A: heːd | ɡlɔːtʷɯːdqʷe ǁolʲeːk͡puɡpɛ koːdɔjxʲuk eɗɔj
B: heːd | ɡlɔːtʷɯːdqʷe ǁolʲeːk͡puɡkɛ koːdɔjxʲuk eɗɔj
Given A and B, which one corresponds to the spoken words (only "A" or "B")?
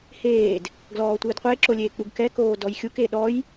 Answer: B